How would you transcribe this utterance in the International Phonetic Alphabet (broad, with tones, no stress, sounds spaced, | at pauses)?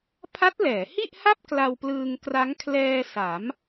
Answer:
pʰ a˦˥ t̚ l ɛː˩˦ h i˥˩ ʔ h a˥˩ p̚ k l a˧ w p l ɯː˧ ŋ k r a˦˥ ŋ kʰ l ɛː˧ s a˩˦ m